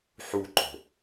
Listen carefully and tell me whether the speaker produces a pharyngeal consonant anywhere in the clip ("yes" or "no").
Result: yes